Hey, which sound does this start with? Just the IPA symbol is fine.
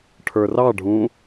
ʈʰ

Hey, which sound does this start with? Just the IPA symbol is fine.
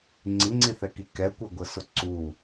ŋ͡ǀ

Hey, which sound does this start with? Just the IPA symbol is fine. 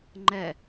ŋ͡ǃ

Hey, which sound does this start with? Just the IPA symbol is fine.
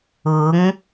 ʊ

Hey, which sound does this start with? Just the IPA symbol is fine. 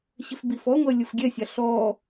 ɕ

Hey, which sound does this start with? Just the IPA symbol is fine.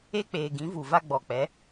e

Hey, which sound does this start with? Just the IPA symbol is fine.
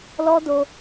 l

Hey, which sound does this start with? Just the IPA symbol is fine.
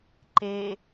ǃ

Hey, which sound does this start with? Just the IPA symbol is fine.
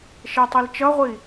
ʃ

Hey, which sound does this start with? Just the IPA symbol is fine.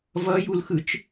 v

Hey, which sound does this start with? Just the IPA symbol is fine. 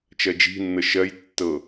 t͡ʃ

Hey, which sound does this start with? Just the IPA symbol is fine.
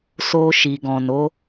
s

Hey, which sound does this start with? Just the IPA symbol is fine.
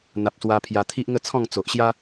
n̪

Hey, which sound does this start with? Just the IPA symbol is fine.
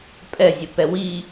pʼ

